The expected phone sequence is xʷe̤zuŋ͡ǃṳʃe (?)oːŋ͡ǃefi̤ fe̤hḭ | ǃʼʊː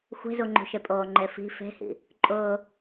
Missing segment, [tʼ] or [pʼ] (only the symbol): pʼ